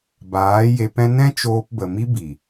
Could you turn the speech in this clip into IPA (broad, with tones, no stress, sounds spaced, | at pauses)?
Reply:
b aː˨˦ j e˧ p ɛ̃˦ n ɛ̃˦ t͡ʃ oː˧ p b ə˨ m i˦ b i˨